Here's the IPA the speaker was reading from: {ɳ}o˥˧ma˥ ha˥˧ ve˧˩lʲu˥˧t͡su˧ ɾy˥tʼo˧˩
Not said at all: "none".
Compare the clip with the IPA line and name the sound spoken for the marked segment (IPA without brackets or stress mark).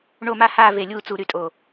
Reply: ɳ